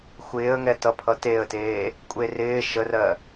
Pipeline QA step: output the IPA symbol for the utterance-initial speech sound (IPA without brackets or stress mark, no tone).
xʷ